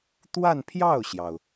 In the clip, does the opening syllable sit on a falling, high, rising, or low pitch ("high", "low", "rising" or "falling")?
falling